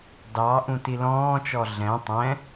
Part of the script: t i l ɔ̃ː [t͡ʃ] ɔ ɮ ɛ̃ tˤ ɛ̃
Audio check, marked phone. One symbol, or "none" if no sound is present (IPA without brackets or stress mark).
t͡ʃ